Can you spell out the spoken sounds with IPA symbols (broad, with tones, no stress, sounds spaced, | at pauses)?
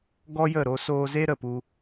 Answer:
ɡ ɔ˦ j ə˦˨ ɾ o˧ s oː˧ z e˦ ɾ ə˨ p u˧